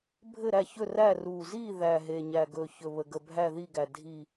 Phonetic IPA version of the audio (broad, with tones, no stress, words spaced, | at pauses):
bʱɘ˥˨ɾæ˥˨çɵ˥˨ræ˥˨ ru˨˩zi˥˨ ðæ˨˩ ɦe˨˩ɲæ˨˩ɡɵ˨˩ çɵ˨˩βə˨˩ɡə˨˩ bʱæ˥˨ði˥˨ɡæ˨˩ dʱi˥˨